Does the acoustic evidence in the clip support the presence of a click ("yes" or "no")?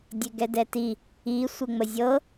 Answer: no